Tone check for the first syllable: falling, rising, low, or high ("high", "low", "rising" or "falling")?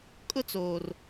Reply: high